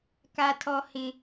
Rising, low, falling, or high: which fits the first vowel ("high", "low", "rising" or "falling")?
high